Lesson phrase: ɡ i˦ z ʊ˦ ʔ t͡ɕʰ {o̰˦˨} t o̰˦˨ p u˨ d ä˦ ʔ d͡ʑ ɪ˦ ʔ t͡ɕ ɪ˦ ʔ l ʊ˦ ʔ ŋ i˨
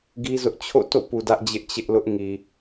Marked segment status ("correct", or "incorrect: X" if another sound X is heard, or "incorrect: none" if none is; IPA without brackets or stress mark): correct